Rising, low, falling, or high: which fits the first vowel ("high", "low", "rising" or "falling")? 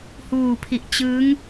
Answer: low